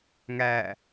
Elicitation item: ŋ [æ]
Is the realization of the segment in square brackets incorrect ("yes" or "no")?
no